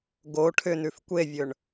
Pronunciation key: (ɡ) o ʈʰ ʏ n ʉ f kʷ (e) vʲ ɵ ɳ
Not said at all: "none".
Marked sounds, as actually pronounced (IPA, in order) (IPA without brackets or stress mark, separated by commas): ɡ, e